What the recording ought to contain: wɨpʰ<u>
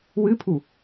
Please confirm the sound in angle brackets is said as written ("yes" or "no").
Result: yes